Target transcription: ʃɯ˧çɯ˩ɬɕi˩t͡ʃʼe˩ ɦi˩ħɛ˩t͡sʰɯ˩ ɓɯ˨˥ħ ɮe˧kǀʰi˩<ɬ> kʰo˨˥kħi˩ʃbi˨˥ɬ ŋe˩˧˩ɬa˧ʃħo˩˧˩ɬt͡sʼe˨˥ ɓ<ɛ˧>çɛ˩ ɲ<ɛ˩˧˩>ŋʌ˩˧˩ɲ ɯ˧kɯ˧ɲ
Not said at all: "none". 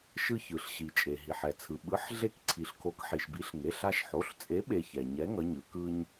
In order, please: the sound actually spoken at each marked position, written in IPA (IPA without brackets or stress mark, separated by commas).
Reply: ɬ, e˧, ɛ˨˥